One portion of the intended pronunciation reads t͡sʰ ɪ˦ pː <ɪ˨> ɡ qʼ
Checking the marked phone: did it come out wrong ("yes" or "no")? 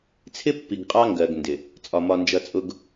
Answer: yes